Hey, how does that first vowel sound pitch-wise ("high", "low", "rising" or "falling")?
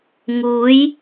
rising